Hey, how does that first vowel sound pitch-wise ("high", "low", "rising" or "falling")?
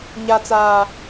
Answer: low